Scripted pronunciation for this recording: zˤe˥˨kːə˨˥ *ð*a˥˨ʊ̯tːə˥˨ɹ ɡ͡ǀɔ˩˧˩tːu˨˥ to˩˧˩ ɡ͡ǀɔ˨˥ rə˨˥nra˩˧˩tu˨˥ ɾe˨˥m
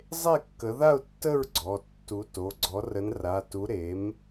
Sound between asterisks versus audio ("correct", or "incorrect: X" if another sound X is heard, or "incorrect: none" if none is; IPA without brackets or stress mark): correct